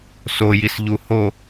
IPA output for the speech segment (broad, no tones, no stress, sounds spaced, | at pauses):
s o j i s ʎ u h o